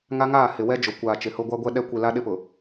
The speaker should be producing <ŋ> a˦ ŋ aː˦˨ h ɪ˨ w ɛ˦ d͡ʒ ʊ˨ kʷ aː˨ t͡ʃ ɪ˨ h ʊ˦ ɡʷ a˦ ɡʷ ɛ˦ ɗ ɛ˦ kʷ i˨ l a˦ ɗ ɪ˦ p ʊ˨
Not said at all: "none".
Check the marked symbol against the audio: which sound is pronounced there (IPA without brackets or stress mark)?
ŋ